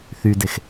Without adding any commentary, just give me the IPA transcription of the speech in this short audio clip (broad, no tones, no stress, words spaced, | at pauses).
θydex